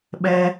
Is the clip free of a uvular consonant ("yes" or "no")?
yes